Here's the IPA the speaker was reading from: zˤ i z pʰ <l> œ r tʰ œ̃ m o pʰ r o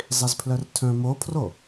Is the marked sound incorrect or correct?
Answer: correct